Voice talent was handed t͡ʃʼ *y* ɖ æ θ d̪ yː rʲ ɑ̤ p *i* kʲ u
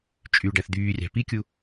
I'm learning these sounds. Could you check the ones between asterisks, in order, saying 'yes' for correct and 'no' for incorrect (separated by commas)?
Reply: yes, yes